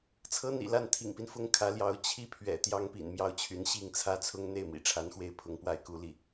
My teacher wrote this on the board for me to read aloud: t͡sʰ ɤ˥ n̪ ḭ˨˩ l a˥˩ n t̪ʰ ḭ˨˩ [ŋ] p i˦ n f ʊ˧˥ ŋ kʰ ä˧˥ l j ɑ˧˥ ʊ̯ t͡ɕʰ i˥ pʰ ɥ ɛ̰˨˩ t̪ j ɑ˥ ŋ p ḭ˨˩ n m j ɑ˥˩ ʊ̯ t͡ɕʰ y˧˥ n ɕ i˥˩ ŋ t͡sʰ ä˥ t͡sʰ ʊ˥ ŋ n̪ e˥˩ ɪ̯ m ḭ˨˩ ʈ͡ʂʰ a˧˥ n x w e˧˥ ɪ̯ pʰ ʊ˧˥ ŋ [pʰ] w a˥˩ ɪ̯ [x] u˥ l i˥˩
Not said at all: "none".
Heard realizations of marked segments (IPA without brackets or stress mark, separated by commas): ŋ, p, k